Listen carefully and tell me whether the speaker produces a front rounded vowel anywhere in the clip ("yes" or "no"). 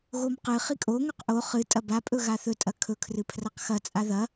no